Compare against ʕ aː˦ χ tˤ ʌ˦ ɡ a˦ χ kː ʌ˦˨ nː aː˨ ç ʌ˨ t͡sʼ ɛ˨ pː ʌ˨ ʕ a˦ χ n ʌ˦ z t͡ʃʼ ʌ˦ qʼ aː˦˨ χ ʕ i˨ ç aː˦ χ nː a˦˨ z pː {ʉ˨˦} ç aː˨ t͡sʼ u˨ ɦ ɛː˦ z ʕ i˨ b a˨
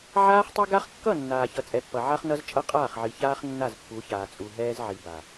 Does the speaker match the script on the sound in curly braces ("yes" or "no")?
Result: no